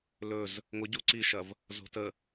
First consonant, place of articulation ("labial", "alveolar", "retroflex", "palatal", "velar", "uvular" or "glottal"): alveolar